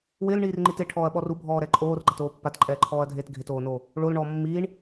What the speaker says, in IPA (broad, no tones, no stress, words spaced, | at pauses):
wɪːlɳiːrŋ͡ǃit eʈʰɔːɐ̯ɓɔr ubʱɔːɾɛ ǃʼoːrɡ͡ǃatoː pːatǃʼɛːǃʰɔːɐ̯dʱeːt ɡʱɪtoːnoː | ɭolɳɔː mːiːɳ